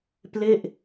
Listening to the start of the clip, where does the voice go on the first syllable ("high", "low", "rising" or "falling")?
falling